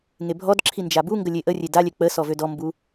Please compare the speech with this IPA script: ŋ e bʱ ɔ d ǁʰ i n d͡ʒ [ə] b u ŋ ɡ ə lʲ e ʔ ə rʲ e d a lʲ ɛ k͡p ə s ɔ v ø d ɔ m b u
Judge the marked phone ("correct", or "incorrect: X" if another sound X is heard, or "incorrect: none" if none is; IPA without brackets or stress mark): incorrect: a